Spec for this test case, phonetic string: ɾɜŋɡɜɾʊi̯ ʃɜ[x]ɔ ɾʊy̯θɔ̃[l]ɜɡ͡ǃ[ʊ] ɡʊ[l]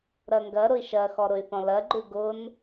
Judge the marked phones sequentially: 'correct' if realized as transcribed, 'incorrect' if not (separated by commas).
correct, correct, incorrect, incorrect